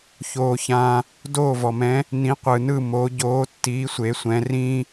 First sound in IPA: ç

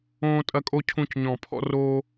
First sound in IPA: õː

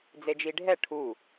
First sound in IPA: d͡z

